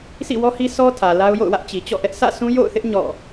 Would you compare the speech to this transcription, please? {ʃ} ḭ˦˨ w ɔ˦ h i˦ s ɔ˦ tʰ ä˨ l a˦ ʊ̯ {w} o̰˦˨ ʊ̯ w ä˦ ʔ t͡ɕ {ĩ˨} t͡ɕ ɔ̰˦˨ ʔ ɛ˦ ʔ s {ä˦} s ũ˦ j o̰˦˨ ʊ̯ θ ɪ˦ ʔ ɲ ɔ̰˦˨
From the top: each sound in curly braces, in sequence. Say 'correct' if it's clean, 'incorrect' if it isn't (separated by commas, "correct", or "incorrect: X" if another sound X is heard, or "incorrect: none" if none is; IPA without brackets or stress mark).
incorrect: s, incorrect: j, incorrect: i˨, incorrect: ä̰˦˨